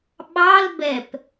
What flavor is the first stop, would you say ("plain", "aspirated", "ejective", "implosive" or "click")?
implosive